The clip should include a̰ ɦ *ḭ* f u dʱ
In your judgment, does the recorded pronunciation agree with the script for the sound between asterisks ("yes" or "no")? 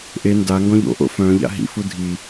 yes